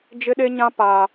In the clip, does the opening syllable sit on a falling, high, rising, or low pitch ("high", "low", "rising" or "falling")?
high